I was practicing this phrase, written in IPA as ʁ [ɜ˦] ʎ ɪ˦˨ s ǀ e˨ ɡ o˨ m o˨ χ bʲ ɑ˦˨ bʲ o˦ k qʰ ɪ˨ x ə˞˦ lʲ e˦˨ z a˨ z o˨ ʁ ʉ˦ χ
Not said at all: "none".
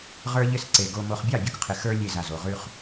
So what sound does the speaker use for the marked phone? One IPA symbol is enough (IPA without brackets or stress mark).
ə˞˦